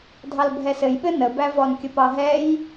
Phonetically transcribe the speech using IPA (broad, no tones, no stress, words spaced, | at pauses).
dʱɑlbʱɛsɘjɓɘ nəbævɔnkʲəp ɑɦɛj